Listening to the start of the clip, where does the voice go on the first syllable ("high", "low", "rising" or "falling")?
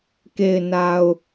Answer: low